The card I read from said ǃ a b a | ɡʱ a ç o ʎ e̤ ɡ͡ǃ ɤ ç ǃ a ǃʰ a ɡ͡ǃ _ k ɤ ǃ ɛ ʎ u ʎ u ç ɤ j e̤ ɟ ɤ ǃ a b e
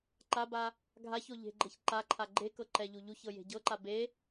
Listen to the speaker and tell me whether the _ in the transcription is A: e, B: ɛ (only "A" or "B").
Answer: A